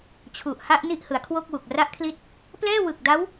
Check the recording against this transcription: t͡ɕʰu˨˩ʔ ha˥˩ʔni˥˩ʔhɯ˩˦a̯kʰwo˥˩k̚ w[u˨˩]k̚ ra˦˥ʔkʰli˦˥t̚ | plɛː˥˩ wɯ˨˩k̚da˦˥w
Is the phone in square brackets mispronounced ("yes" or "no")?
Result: no